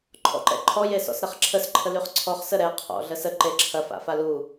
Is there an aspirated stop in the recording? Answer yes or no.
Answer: yes